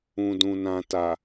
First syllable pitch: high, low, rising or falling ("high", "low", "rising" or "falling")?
low